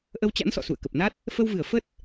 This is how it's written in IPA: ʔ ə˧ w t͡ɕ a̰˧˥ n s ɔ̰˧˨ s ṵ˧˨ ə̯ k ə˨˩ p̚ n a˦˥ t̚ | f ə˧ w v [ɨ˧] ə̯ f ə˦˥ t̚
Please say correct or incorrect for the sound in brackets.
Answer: incorrect